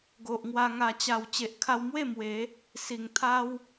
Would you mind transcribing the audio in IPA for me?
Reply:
ɡ o˨ ʔ ŋ w a˧ ŋ a˨˩ t͡ɕ a˨˩ w t͡ɕ e˨ ʔ kʰ a˧ w m w e˥˧ m w e˨˦ | s i˨˩ ŋ t̪ʰ a˦ w

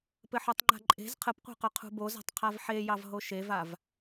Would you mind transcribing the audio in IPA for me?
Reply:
p ɘ ħ œ tˤ ŋ͡ǃ a̤ ǃʼ e̤ z qʰ ə p qʷ ɑ̤ q œ qʰ ṳ b o z a̤ tˤ qʰ a v ħ e j ɑ v ɦ o ʃ e v a v

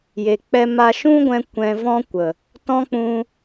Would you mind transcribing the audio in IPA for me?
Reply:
j e˨ k͡p ɛ˧ m a˧ ʃ ũ˦ ɡʷ ɛ̃˧ kʷ ɛ̃˧ v ɔ̃˦ kʷ ə˨ | t ɔ̃˦ k͡p ũ˧

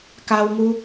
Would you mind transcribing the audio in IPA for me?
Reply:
k a˧ w ŋ u˧

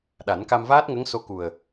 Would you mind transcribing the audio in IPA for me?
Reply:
ɗ a˨˩˦ n k a˧ m v aː˦˥ t̚ ŋ ə˧˥ ŋ s o˧˥ k u˨˩ ə̯

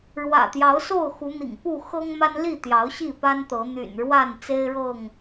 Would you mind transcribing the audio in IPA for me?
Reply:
ɻ w ä̰˨˩ t̪ j ɑ˨˦ ʊ̯ s o˥˨ ʊ̯ x u˨˦ n̪ ḭ˨˩ ŋ p u˥˨ x ɤ˦ ŋ m a˦ n l i˥˨ t̪ j ɑ˨˦ ʊ̯ ɕ i˥˨ p a˦ n t̪ ɤ˨˦ n̪ y̰˨˩ n ɻ w a˥˨ n t͡s e˦ ɪ̯ ɻ ɤ˥˨ ŋ

